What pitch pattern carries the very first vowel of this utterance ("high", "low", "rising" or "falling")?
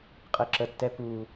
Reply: low